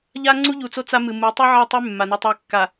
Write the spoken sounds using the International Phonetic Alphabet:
ʎ a˦ ŋ͡ǀ u˦ ʎ u˨ t͡s o˦ t͡s a˦ m ɨ˨ m u˨˦ tˤ ʉ˦ ʕ a˦˨ tˤ ʉ˦ mː a˨ n e˦ tˤ e˦ kː a˨

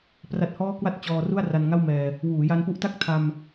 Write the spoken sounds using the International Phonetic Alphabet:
p r a˦˥ t̚ h ɔː˥˩ k w a˥˩ t̚ t͡ɕ ɔː˧ r u˥˩ a̯ r a˧ n ŋ a˥˩ w m ɛː˧ | w uː˩˦ j a˧ n p u˦˥ ʔ t a˥˩ k̚ tʰ a˧ m

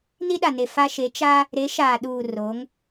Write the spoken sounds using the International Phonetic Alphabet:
n i˦ ɗ a˨ n e˨ f a˦ ʃ e˨˦ t͡ʃ a˦ | ɾ e˨˦ ʃ aː˨ ɗ uː˨ r o˨˦ ŋ

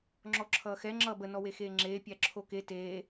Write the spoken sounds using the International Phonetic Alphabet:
ŋ͡ǁ ɔ ǁʰ ʌː x ɛ ŋ͡ǁ ʌː b ə n ɔ w e x eː ŋ͡ǁ eː pʲ æ ǁʰ o k e t eː

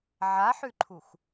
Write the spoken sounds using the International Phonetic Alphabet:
ʕ a ħ ʉ ǃʰ u x

